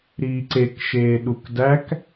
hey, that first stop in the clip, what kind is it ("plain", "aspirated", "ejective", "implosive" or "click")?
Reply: click